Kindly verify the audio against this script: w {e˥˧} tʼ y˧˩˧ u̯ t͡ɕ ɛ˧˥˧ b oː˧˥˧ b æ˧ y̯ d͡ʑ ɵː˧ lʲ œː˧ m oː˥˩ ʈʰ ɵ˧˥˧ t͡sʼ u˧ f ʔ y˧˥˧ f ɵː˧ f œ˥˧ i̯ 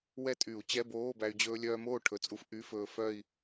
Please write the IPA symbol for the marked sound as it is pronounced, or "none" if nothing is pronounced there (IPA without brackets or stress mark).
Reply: ɛ˥˧